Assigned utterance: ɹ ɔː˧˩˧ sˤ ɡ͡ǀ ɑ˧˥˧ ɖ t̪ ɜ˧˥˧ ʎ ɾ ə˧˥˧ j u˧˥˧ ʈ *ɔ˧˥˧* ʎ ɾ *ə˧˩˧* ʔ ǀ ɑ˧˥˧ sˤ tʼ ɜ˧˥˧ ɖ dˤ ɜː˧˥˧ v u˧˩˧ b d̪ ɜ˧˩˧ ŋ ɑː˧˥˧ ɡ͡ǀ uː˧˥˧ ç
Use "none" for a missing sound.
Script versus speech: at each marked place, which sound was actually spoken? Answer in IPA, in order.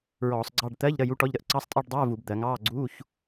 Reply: ɔ˧˥˧, ə˧˥˧

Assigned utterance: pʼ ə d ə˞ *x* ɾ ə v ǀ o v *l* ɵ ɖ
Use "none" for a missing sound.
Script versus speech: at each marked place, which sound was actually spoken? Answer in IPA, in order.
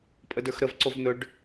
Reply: x, n̪

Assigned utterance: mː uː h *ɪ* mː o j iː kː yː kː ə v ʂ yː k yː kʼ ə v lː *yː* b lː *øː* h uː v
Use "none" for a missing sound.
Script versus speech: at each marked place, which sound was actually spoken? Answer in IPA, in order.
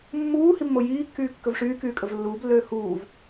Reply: i, uː, øː

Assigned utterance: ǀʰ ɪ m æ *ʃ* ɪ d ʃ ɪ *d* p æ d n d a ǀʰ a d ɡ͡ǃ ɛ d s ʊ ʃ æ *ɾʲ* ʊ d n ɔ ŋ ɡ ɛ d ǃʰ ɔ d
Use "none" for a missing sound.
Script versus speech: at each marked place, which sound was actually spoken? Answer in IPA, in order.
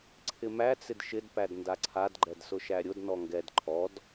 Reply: t͡s, d, ɾʲ

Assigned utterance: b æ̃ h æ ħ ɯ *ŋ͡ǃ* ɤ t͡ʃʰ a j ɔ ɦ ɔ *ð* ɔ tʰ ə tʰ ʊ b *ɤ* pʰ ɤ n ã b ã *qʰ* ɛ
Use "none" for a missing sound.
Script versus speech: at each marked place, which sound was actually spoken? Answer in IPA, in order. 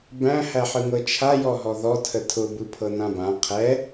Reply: ŋ, ð, ɯ, qʰ

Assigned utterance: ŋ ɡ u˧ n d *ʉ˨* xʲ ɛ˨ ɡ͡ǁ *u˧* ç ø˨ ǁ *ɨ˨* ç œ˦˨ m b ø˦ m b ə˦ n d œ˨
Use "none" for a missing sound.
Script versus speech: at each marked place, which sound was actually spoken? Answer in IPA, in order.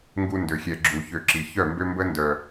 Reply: ø˨, u˨, i˨

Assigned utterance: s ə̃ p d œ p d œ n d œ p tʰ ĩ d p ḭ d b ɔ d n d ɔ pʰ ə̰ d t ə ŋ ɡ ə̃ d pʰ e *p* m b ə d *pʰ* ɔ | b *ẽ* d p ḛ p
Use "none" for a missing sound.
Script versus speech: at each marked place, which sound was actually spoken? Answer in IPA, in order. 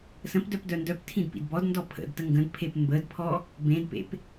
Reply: p, pʰ, ẽ

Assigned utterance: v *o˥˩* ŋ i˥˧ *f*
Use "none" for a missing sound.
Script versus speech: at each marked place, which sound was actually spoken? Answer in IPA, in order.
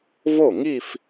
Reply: o˥˩, f

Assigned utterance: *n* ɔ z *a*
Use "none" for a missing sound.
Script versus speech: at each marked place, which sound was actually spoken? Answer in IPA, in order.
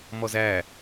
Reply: m, æ

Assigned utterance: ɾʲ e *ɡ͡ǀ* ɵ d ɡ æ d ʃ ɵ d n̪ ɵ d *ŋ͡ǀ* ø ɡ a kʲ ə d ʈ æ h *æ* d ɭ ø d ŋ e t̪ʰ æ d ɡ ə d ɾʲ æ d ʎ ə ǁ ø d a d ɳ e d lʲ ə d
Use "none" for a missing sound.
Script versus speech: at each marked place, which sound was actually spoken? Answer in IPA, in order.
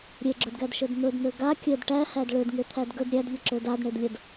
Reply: ɡ͡ǁ, n̪, æ

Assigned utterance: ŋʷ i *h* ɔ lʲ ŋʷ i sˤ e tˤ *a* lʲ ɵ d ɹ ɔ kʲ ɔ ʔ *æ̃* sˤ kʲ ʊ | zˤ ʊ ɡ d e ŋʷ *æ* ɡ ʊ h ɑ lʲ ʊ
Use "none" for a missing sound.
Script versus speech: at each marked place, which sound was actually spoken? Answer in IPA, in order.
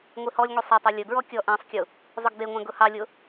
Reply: h, æ, æ̃, æ̃

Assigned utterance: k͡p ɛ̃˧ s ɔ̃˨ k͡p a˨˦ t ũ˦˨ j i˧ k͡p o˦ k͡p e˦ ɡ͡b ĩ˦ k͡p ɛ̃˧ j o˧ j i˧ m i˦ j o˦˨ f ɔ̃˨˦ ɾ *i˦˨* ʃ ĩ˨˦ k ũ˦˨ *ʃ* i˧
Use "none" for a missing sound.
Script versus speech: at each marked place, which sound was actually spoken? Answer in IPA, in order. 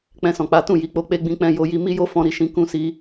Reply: i˦˨, s

